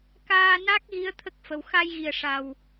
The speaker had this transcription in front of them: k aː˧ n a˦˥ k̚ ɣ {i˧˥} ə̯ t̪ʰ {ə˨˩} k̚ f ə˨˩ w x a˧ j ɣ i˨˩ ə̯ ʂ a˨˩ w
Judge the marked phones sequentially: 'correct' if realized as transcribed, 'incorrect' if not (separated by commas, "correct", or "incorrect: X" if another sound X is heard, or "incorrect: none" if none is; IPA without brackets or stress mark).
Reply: correct, incorrect: ə˦˥